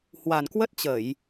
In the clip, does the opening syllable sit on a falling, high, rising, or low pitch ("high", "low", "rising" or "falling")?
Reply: low